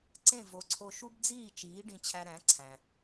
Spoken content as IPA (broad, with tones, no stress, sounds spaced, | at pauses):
ǀ ẽ˥˩ v o˩˥ ǀʰ o˧ ʃ u˥ b d͡z iː˥˩ t͡ʃ iː˩˥ ɖ ĩ˧ t͡ɕʰ æ˧ ɾ æ̃˩˥ ǀʰ æ̃˩